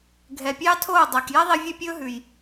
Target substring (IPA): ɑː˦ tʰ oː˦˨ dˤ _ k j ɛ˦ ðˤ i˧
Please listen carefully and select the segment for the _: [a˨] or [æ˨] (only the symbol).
æ˨